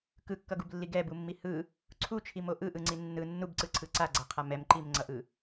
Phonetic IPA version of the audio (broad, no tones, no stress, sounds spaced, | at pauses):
k ɯ kː ʌ ɡ u b lː i ɡ ɛ b u mː i h ɯ | ǀʰ u t͡ʃʰ i m o ʔ ɯ ʔ ɯ ŋ͡ǀ i nː ɯ nː u b ǀ ɯ ǀʰ ɯ ǀ a ɡ͡ǀ a qʰ a m ɛ m ǃ i m ŋ͡ǀ ʌ ʔ ɯ